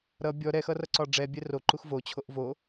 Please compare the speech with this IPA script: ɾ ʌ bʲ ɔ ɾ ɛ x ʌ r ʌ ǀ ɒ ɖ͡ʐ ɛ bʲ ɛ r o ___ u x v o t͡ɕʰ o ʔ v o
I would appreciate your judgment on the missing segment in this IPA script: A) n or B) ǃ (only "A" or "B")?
B